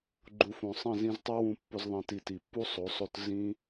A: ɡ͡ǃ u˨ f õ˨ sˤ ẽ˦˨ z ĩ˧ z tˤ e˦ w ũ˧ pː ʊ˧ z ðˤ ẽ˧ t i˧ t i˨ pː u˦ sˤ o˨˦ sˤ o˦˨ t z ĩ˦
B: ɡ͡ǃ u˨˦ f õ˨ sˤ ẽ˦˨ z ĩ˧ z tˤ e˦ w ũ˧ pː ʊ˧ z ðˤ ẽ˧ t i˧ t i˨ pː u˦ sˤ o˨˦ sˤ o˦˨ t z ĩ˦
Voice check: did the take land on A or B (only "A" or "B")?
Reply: A